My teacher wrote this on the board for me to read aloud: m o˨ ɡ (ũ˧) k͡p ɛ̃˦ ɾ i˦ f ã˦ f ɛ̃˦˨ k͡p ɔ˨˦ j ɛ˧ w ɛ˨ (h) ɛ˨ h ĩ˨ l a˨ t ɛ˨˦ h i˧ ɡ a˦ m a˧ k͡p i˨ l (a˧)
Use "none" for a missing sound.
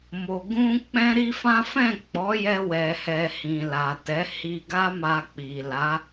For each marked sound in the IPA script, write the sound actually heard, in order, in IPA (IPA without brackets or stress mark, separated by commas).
ũ˧, h, a˨˦